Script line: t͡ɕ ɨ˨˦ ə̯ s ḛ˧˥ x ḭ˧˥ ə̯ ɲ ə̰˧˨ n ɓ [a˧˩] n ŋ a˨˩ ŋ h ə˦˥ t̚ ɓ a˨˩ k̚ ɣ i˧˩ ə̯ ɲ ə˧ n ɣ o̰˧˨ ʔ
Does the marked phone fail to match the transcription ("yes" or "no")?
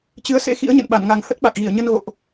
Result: no